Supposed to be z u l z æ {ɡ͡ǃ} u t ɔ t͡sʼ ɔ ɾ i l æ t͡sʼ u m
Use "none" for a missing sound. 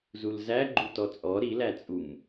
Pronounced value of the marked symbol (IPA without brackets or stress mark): ɡ͡ǃ